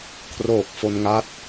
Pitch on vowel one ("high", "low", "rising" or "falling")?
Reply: low